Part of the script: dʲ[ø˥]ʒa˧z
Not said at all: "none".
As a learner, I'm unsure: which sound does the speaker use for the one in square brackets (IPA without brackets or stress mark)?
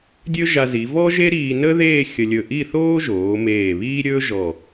ɵ˥